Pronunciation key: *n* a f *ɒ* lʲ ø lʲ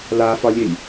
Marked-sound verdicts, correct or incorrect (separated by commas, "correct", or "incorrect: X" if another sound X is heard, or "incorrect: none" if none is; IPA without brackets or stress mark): incorrect: l, correct